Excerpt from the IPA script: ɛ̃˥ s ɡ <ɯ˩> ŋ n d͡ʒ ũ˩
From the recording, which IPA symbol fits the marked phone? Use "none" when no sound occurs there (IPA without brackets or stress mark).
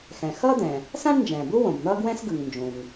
ɯ˩